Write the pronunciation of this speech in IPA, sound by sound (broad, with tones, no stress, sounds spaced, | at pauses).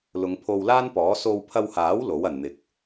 l ʊ˨˧ ŋ pʰ o˧ w l aː˥ n p ɔː˨˥ s o˧ w pʰ ɐ˧ w h aː˨˥ w l o˨˥ w ɐ˨ n n̪ ɪ˨˥ k̚